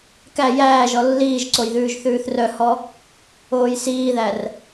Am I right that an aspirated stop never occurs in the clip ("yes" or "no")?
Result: yes